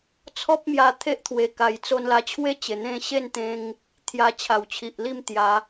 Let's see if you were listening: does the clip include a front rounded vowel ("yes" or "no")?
no